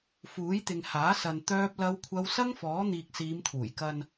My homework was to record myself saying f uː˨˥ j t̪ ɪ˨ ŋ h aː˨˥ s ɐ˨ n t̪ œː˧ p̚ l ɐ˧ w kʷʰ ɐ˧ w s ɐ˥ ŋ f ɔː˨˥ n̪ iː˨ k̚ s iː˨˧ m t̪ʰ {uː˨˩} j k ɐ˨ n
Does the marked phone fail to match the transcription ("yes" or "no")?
no